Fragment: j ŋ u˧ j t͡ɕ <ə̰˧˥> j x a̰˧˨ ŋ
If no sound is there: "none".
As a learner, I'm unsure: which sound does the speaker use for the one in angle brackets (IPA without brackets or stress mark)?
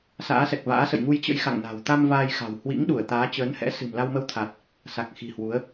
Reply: ə̰˧˥